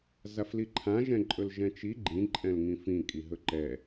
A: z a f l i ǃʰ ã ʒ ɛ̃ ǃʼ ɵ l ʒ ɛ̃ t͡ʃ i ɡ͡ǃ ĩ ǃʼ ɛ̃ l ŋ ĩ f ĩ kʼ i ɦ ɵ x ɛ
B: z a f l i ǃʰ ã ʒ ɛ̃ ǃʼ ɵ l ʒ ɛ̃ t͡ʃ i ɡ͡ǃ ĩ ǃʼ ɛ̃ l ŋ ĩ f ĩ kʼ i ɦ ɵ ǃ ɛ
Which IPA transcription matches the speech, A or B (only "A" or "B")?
B